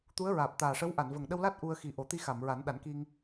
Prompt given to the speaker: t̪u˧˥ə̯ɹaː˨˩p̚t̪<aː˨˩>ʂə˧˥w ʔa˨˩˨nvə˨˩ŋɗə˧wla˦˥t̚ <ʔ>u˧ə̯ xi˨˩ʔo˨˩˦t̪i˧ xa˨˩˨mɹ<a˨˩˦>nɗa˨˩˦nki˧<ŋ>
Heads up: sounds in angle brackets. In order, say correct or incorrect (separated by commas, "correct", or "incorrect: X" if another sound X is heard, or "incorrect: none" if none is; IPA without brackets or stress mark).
correct, correct, correct, correct